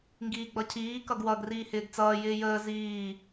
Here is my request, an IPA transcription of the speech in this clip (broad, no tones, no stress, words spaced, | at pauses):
ŋɡiːɡ͡bʌcʰiː kʌɡwʌɡ riːhɪːɡt͡sʌː jɪːjəː ziː